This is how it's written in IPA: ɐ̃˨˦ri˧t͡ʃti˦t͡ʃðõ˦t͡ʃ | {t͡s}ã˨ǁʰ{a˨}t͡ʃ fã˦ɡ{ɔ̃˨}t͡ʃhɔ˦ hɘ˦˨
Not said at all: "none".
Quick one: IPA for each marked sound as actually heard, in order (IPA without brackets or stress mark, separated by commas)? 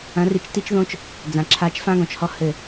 d͡z, a˧, ɔ̃˨